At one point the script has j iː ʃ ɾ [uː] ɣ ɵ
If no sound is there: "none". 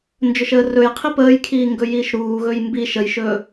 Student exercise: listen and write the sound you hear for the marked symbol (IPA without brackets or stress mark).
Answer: uː